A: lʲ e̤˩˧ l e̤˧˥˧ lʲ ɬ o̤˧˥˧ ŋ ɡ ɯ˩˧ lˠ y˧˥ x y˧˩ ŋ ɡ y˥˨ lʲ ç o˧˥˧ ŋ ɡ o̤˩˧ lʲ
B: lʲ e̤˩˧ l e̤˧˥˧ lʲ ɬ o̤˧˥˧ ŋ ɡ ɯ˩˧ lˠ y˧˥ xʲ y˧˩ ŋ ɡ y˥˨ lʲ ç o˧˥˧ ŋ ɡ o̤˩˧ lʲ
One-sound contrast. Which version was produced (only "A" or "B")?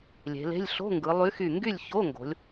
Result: A